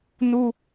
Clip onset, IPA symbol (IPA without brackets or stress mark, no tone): n